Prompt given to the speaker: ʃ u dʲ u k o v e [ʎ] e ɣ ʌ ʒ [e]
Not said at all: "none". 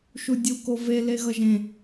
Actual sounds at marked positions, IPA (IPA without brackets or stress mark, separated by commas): l, ẽ